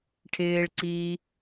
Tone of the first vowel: low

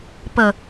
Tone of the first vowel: low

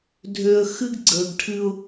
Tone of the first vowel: low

